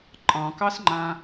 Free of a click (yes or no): no